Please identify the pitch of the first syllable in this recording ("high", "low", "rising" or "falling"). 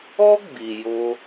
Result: high